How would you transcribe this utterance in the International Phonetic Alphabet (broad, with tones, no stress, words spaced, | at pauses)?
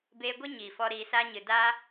beː˧ɡʷe˦ ɲiː˨fɔ˧ ɾiː˨saː˧ɲɨ˨ da˦